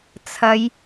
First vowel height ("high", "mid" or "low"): low